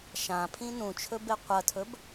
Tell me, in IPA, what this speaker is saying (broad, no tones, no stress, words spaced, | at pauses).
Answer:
ʃãpʰĩ nũt͡ʃʰɵbe qʷɐtʰɵb